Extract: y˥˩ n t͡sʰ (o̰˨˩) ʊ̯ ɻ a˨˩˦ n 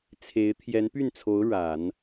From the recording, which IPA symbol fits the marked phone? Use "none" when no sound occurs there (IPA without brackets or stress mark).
o˧˥